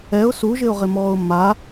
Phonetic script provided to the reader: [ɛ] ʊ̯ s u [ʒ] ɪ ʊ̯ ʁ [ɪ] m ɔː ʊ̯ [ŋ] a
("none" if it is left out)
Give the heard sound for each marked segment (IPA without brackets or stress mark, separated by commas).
ɛ, ʒ, ɪ, m